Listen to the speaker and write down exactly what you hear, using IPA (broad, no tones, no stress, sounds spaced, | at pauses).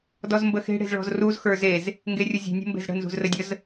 d ɔ z m b ə x e̤ ɽ e̤ z ɭ ɔ̤ z r u z x ə˞ z e z | ŋ ɡ e rʲ u zʲ e̤ nʲ ə̤ m b e̤ z ɽ ə̤ n z ṳ z r ə dʲ ə z